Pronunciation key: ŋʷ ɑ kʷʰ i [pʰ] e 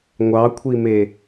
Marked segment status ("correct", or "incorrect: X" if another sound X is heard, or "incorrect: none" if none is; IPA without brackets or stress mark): incorrect: m